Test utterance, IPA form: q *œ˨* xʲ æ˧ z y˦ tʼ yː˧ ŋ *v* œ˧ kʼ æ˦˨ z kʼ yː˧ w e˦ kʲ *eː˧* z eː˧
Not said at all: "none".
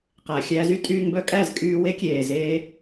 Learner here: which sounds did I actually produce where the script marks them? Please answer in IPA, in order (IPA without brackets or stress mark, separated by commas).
æ˨, b, eː˨